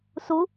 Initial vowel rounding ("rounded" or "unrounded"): rounded